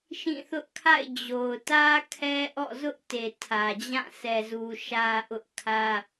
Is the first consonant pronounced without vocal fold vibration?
yes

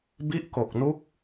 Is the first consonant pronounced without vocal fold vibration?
no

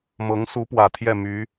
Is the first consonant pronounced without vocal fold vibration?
no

